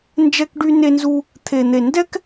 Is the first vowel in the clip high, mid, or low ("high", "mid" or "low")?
mid